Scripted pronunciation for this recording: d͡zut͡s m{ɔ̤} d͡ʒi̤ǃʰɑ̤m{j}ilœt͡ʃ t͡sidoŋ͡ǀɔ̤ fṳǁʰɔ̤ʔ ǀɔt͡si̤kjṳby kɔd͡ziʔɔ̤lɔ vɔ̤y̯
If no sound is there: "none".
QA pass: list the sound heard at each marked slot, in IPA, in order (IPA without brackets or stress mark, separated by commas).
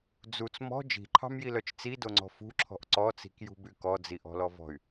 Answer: ɔ̤, j